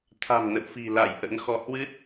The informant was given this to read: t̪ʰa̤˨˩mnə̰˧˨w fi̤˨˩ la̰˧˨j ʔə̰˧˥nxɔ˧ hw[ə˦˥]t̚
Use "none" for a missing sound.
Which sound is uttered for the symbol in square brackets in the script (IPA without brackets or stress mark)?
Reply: ɨ˦˥